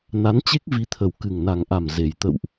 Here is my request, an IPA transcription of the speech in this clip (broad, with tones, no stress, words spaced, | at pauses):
na˨˦nt͡ɕe˦˥k̚vi˨˦t̪ʰə˨˩w kɨ˨˩ŋna˨˩ŋʔa˨˩m ze˨˩j t̪ə̰˧˨wʔ